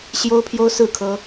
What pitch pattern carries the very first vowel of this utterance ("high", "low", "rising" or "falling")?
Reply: high